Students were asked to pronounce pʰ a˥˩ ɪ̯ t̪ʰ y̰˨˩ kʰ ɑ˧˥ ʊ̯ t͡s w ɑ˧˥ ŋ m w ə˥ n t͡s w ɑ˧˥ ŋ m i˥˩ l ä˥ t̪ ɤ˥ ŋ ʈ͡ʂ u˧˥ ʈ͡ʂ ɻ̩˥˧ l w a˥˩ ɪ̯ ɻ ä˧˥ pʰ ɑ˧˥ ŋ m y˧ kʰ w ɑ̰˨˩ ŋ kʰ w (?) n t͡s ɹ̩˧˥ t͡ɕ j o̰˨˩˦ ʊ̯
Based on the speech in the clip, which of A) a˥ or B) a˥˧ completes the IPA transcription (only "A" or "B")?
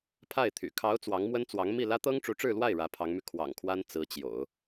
A